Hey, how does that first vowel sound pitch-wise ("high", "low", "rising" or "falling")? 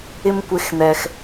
high